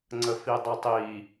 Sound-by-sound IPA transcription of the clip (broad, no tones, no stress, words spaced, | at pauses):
ŋ͡ǀəfidˤitˤi